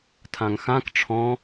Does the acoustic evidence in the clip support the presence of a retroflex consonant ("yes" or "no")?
yes